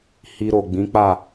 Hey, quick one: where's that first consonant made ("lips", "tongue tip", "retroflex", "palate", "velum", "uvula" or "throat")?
throat